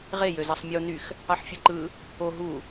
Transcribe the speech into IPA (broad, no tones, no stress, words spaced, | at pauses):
ʁe jøzɑsˤmʲo nyx | ɑħfʲɯǃɯ | o ɦu